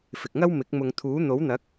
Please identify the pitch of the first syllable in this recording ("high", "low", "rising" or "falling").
low